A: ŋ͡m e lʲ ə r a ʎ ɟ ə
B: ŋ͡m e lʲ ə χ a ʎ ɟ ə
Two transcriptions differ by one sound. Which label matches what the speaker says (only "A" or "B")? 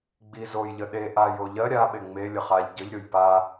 B